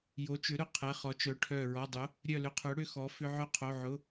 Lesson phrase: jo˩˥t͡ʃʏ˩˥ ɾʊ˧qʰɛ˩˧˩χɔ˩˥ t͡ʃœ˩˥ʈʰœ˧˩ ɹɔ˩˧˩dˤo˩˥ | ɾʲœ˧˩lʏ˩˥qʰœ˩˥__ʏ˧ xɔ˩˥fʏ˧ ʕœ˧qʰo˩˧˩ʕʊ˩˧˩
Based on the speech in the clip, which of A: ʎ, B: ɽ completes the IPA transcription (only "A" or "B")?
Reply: B